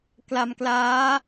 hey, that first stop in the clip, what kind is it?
plain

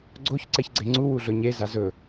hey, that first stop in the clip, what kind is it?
click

